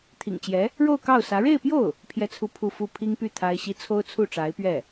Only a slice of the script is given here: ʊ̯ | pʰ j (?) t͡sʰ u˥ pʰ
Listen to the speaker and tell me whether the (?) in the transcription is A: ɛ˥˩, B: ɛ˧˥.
A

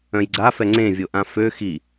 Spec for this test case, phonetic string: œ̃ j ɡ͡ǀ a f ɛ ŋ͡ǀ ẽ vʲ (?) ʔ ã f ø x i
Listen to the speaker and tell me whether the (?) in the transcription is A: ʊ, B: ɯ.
A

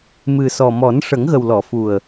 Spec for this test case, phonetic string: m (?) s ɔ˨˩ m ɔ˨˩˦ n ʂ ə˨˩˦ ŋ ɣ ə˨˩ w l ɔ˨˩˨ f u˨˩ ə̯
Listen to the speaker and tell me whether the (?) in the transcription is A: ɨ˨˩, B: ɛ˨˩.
A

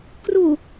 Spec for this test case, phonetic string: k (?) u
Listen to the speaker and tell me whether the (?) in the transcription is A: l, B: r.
B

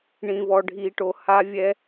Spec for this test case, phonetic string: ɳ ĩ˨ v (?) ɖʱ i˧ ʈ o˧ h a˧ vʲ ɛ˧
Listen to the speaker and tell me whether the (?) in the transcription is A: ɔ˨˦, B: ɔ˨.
B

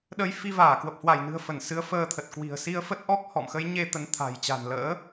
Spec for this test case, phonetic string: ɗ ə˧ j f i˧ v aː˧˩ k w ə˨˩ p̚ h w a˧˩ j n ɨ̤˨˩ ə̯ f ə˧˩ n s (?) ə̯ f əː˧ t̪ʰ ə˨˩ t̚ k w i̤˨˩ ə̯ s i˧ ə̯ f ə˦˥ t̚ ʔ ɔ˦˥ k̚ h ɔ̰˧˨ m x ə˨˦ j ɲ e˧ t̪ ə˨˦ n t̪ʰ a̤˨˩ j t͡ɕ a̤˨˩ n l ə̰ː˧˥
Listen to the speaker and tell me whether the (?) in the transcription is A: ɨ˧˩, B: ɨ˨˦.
B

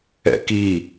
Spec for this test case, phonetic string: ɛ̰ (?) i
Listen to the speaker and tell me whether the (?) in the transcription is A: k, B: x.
A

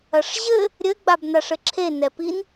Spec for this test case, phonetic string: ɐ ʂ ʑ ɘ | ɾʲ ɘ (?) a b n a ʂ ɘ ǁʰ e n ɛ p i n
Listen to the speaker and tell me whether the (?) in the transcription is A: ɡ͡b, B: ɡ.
A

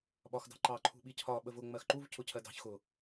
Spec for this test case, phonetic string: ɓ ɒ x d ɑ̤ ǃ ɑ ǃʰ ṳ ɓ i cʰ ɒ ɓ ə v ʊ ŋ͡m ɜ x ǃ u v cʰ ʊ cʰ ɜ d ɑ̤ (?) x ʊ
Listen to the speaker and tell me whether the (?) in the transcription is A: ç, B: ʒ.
A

